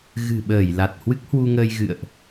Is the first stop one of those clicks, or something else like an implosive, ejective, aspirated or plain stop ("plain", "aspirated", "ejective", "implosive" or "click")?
implosive